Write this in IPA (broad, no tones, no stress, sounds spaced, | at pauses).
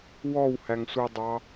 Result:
w ɔ w h æ ŋ sʷ æ dˤ ɑ